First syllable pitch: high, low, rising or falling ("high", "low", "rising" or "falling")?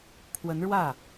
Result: rising